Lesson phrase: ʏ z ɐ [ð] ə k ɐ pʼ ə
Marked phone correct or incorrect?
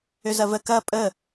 incorrect